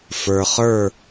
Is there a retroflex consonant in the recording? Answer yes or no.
no